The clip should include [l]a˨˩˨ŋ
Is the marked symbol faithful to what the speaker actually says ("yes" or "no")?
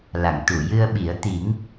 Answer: yes